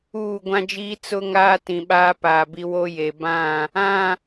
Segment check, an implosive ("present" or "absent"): present